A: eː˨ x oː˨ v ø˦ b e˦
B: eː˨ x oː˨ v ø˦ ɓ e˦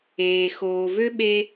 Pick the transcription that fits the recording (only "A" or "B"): B